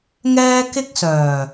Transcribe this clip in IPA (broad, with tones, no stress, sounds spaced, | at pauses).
ŋ ɛː˥ k ɪ˥ k̚ s œː˨˩